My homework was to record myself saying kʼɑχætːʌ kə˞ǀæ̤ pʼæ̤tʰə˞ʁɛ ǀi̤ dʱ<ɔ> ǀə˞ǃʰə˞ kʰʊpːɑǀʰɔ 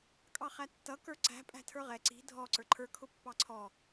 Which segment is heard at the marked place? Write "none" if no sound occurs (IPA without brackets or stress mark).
ɔ